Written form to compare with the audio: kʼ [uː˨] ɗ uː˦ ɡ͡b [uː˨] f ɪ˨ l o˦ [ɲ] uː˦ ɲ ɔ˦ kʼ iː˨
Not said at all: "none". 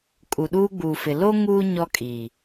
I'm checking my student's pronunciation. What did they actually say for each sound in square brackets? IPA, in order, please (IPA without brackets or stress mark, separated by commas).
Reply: u˨, uː˨, ŋ